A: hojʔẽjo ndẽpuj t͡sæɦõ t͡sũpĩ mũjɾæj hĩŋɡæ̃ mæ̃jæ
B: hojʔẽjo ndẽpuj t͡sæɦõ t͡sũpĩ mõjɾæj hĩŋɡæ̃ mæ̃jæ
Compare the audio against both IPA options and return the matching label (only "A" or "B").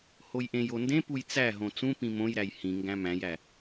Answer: B